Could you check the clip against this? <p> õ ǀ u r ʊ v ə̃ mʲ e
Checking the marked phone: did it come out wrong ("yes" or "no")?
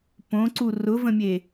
no